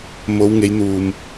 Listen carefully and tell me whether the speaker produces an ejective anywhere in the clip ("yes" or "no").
no